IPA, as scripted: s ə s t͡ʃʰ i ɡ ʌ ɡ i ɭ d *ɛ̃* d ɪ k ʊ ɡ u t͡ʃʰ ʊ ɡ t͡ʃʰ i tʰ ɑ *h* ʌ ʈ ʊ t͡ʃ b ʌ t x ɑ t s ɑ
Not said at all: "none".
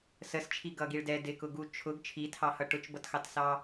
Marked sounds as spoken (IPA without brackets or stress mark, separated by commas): ɛ, h